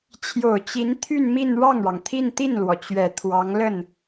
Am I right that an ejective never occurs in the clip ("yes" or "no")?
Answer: yes